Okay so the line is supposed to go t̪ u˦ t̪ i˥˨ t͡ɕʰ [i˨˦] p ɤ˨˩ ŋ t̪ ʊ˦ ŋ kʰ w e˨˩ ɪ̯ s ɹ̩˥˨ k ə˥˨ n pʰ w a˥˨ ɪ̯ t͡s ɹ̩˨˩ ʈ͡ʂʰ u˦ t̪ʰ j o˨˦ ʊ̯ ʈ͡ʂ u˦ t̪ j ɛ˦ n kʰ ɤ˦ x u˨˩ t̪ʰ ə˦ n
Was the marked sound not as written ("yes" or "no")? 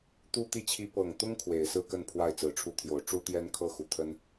yes